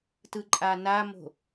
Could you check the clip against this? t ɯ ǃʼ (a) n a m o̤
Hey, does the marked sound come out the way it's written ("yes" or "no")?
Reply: yes